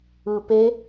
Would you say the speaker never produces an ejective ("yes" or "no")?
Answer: yes